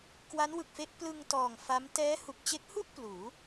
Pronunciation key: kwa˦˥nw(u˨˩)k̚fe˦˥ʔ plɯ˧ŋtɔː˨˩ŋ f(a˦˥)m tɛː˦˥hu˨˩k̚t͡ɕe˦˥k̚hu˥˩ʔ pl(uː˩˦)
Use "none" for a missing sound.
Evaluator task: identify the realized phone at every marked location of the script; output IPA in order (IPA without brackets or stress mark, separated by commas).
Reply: ɯ˨˩, a˦˥, uː˩˦